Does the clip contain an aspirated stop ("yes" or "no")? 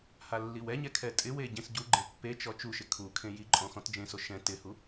yes